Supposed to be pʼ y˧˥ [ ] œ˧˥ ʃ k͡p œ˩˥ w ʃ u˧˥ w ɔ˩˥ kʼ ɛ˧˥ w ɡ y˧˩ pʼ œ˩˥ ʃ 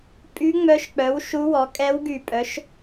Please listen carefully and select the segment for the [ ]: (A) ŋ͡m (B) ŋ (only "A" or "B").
A